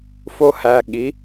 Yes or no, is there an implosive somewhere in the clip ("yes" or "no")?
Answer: yes